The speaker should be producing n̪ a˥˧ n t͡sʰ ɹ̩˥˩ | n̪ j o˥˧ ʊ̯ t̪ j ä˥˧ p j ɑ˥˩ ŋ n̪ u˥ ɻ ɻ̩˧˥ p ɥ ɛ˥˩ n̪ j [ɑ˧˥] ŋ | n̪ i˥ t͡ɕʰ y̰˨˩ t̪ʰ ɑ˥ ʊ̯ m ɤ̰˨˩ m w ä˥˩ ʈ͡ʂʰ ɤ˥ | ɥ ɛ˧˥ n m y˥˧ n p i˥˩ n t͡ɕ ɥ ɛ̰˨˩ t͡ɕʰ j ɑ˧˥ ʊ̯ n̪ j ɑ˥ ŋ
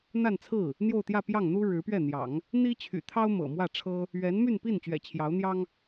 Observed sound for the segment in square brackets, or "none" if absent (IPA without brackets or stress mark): ɑ̰˨˩˦